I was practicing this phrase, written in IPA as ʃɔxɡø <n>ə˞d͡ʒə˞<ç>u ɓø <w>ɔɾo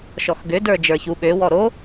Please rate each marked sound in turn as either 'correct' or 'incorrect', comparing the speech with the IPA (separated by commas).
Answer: incorrect, correct, correct